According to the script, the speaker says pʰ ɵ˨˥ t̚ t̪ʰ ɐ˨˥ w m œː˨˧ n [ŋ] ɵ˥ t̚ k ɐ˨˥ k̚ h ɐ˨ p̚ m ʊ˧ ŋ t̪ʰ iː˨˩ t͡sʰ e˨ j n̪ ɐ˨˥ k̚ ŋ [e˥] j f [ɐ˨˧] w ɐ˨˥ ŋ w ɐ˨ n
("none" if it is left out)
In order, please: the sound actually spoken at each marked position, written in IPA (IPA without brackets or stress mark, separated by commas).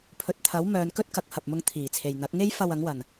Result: k, e˥, ɐ˧